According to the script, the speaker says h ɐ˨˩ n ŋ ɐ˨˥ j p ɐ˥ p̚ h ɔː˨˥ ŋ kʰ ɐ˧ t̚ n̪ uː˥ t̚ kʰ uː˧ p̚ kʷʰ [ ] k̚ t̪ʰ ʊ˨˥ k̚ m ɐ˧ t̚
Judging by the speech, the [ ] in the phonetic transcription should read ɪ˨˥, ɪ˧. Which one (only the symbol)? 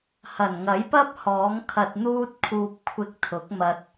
ɪ˧